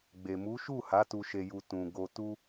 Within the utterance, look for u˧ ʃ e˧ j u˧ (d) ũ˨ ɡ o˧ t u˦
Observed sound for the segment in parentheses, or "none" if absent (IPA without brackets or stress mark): t